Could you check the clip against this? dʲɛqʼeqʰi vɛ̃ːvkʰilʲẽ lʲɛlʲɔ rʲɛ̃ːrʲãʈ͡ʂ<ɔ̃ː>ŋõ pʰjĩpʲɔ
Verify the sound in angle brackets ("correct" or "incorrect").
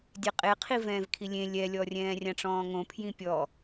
correct